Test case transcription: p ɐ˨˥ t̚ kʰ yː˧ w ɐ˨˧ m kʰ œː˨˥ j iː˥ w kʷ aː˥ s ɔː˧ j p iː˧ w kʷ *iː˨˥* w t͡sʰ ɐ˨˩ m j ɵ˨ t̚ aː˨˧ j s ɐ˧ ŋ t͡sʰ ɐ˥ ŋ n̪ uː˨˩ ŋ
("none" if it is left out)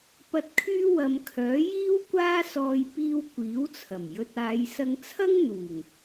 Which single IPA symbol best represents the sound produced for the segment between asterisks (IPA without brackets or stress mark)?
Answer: iː˨˥